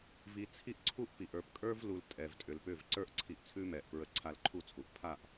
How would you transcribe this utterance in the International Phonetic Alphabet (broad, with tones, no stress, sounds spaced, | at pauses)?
v i˧ t͡sʰ i˦ ʔ ǀʰ u˦ ʔ p i˨ ʔ ə˞˨ p kʼ ə˞˦ v l u˨ l tʼ ɛ˨ v tʼ ʏ˨ l p ʏ˦˨ v ǀ ə˞˦ ʔ ǀʰ i˧ ʔ t͡sʰ ʉ˦ m ɛ˨ ʔ p ɹ ə˧ ǀʰ a˧ l ǃʰ u˦˨ t͡sʰ u˨ ʔ pʰ a˦˨ ʔ